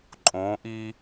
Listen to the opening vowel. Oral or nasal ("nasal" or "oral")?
nasal